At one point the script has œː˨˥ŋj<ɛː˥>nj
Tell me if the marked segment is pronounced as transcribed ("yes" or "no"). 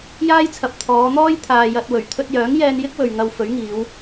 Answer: no